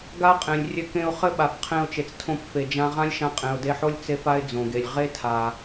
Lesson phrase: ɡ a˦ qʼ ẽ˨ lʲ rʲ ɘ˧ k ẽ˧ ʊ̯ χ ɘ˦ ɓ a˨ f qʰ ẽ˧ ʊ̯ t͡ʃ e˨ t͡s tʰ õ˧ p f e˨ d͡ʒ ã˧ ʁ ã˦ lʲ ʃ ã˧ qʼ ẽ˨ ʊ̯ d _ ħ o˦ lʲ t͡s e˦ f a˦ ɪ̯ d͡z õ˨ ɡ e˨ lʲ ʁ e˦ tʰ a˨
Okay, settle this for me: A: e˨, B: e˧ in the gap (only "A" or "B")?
B